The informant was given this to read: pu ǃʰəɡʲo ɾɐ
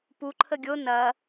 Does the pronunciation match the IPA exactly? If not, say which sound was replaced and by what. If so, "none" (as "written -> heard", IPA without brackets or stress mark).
ɾ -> n